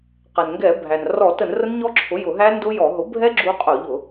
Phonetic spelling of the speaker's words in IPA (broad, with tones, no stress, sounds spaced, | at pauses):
q ɛ˩ n ŋ ɡ ɛ˧˩˧ bʱ æ˩ n r ɔ˧˩˧ t ə˧˩˧ n r ə˦˥ n ɲ ɔ˦˥ ǁʰ ʊ˩˥ j ʊ˧˩˧ ɦ æ˦˥ n d ʊ˦˥ j ɔ˧˩˧ ɦ ʊ˩˥ bʱ ɛ˦˥ ɡ͡ǁ u˦˥ qʼ ʊ˧˩˧ ʎ ʊ˧˩˧